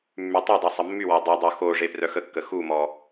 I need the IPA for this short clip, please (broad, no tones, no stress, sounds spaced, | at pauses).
mː y tˤ e dˤ u sˤ ə mː y w ɔ dˤ y dˤ o x o ʐ e p r œ x ə kː ə x u m ɔ